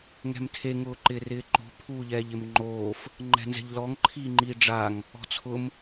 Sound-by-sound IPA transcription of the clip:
ŋ ɛ̤ m tʰ e ŋ ʊː ǃ ɪː r ɪː ǃ o̤ pʰ uː ʎ ɛː ʎ ɪ m ŋ͡ǃ oː f | ŋ͡ǃ ɛ̤ n z ɛ̤ ʎ l ɔ ŋ ǃʰ iː ŋ͡ǃ iː ɖ͡ʐ a ŋ | ɔ̤ t͡sʰ ʊ m

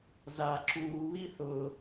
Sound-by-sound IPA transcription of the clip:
z a ǁ uː β i θ ʊː

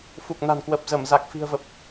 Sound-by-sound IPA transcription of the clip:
f u˨˩ k̚ n a̤˨˩ n k w ə˨˩ p̚ z ə˧˩ m z a˨˩ k̚ f i̤˨˩ ə̯ v ə˨˩ p̚

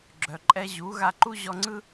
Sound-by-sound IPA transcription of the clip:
ɡ͡ǁ œ˩ ǃʼ ɛ˧ ʑ u˩˥ ɣ a˧ ǃ u˥ ʑ ɔ˧ ŋ͡ǀ ɯ˥

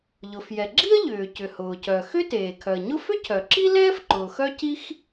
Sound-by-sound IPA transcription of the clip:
ʎ ʊ˩ f j ɛ˩ ɡ͡ǁ i˥ ə̯ ʎ ʏː˩ c ʏ˩ h ʊː˩ c œ˩ x ʏ˥ t eː˩ kʰ œ˩ ə̯ ɲ ʊ˥ f ʏ˥ cʰ œ˩ ǁ i˥ l ɛː˥ f ǃ ʊː˩ x œ˥ c i˥ x

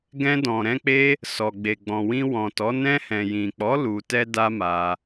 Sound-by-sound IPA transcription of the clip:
ɡ ɛ̃˧ d ɔ̃˨ ɾ ɛ̃˧ k͡p e˦ | s ɔ˨ ɡ͡b e˨ ɡ͡b ɔ̃˨ w ĩ˧ w ɔ̃˨ t ɔ˨˦ n ɛ̃˧ h ɛ̃˨ j ĩ˨ k͡p ɔ˨˦ l u˧ t ɛ˦ d a˦ m a˧

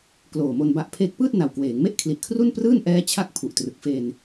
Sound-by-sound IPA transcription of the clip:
k l oː˨˩ m o˧ n b a˦˥ ʔ pʰ e˥˩ k̚ p ɯː˥˩ t̚ n a˨˩ w k w eː˩˦ ŋ m e˥˩ ʔ kʰ l i˨˩ ʔ kʰ r u˥˩ n p r ɯː˥˩ n ʔ ɛː˦˥ t͡ɕʰ a˥˩ k̚ pʰ u˨˩ ʔ t r ɯ˨˩ k̚ f e˧ n

